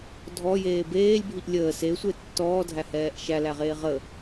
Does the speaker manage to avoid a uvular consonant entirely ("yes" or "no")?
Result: no